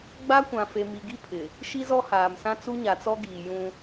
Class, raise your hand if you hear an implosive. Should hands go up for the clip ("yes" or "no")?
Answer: no